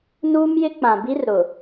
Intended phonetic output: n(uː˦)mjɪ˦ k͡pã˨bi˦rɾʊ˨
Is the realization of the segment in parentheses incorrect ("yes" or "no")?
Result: no